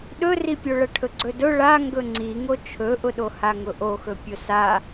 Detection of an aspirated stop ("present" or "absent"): present